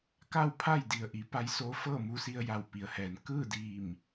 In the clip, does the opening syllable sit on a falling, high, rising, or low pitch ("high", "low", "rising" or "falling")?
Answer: falling